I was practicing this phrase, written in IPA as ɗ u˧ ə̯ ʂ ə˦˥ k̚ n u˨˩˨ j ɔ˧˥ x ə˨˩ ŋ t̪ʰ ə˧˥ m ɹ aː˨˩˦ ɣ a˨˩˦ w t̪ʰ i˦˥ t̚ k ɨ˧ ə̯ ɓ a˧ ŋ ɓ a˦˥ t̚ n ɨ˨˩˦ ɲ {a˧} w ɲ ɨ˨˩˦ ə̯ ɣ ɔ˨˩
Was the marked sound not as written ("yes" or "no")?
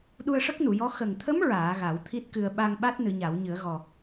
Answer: yes